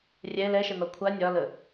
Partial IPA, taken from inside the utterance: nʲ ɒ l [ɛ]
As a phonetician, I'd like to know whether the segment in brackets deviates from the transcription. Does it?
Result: yes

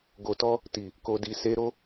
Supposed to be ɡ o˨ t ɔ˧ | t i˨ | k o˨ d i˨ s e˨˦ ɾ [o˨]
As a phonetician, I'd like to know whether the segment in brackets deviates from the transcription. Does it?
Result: yes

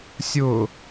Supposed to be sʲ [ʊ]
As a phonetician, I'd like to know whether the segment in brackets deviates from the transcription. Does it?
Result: no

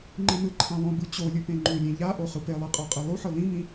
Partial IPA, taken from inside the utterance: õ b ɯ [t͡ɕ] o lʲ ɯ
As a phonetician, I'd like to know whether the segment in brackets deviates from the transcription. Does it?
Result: no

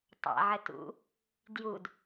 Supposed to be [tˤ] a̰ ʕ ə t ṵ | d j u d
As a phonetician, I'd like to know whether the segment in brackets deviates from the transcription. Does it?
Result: no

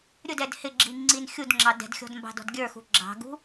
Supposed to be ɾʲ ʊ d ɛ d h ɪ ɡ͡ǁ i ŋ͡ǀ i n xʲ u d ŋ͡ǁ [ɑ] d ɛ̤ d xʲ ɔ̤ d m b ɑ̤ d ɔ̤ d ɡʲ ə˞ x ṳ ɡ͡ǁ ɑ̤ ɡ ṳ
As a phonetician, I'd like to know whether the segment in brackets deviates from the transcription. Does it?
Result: no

